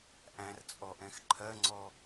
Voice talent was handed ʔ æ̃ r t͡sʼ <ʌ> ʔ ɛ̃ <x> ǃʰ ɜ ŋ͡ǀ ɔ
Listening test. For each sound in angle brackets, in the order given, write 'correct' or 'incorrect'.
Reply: incorrect: ɔ, correct

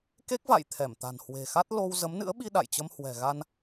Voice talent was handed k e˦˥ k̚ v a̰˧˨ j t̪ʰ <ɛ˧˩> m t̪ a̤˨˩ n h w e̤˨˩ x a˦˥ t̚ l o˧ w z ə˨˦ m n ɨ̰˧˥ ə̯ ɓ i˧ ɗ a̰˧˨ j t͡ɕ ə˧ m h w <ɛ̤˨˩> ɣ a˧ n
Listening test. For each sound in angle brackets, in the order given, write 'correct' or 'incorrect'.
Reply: correct, correct

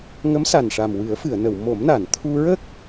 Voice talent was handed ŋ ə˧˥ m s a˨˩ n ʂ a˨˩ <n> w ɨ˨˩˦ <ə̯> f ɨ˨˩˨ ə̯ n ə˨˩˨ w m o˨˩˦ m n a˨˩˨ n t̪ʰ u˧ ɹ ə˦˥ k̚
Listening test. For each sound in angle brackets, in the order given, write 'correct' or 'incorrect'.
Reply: incorrect: m, correct

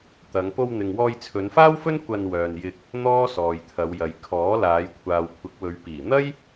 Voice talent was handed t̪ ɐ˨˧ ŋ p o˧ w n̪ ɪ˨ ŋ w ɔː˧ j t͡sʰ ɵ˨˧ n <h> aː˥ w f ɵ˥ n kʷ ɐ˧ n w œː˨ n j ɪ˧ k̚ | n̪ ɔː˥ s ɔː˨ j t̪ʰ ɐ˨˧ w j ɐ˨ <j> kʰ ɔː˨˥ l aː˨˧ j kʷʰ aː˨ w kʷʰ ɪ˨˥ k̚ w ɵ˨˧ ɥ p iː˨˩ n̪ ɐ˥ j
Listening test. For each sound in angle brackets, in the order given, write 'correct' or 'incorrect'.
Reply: incorrect: f, correct

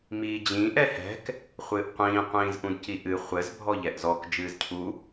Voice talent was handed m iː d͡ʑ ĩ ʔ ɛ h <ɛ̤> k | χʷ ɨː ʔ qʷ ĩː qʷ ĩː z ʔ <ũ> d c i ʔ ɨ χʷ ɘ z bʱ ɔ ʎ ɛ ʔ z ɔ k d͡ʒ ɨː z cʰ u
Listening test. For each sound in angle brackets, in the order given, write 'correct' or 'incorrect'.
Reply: correct, correct

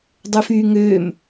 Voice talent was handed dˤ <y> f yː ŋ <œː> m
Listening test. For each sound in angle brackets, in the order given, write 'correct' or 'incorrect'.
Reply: incorrect: ø, incorrect: øː

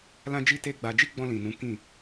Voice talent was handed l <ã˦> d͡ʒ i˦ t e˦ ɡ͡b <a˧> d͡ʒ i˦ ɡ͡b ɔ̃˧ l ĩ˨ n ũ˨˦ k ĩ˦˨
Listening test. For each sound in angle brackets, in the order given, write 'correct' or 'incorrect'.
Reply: correct, correct

